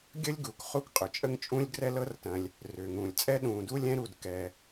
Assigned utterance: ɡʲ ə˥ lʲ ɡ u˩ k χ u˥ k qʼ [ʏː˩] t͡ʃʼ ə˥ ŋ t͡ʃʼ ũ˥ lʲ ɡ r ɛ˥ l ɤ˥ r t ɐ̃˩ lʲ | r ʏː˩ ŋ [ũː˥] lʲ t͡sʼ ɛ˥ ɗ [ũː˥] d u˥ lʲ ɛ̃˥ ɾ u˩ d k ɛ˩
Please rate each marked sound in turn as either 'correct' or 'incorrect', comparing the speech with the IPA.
incorrect: ʏ˩, incorrect: ũː˩, incorrect: ũː˩

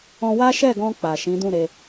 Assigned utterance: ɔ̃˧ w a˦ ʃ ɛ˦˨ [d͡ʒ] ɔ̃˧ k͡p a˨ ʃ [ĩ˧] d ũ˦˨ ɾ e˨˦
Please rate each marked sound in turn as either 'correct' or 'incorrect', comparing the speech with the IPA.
incorrect: ɡ, incorrect: ĩ˨˦

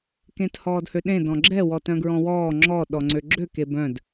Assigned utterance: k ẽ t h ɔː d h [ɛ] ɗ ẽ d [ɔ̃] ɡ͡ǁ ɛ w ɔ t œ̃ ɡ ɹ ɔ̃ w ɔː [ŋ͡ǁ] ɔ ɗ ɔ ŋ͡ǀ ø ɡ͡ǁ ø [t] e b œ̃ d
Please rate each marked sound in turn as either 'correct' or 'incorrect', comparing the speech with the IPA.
incorrect: ø, correct, correct, incorrect: k

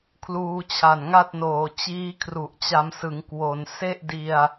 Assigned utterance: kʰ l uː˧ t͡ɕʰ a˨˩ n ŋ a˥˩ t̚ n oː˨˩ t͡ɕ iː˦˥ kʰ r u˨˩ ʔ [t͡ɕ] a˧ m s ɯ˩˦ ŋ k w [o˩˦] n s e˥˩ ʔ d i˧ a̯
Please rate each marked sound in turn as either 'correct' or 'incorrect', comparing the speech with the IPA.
correct, correct

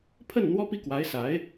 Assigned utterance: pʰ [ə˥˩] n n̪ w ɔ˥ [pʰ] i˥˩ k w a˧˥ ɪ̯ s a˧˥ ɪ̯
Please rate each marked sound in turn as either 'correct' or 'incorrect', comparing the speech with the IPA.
correct, incorrect: p

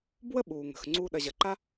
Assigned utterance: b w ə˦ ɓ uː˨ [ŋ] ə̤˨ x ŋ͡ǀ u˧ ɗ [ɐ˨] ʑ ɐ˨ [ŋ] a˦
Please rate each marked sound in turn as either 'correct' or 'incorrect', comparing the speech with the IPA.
correct, correct, incorrect: ǃ

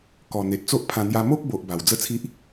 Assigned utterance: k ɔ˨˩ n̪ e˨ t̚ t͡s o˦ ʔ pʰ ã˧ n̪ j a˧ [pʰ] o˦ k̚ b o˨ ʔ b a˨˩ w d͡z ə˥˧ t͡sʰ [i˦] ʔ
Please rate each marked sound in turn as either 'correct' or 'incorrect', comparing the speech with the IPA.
incorrect: m, correct

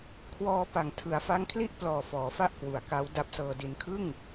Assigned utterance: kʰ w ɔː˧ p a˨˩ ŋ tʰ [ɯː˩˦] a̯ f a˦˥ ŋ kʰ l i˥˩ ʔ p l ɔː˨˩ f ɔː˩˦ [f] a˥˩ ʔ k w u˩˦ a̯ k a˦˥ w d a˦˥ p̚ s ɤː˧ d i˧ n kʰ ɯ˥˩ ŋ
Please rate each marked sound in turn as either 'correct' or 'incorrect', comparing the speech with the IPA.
incorrect: ɯ˩˦, correct

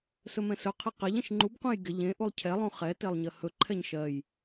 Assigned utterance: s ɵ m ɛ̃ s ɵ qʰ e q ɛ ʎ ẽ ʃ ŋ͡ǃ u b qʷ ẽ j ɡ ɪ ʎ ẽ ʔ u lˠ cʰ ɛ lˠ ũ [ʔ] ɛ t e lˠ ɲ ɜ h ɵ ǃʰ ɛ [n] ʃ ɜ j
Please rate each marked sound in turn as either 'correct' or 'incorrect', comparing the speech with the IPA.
incorrect: χ, incorrect: ɲ

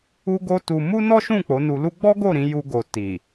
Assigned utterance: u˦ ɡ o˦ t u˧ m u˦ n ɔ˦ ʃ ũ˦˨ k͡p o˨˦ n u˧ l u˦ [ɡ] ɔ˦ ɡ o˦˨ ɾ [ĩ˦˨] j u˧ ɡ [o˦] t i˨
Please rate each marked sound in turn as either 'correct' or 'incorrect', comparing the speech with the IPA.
incorrect: ɡ͡b, incorrect: ĩ˨˦, incorrect: o˨

